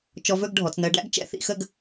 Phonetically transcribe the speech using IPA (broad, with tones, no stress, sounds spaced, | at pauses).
t͡ʃ ɔ˧ v ɵ˥˧ ɡ ɖʱ ɔ˩˧ t͡s n ɜ˧ ɖ æ̰˥ ɡ t͡ʃ ɛ̰˥˧ θ ḭ˥˧ x ə˥˧ ɡ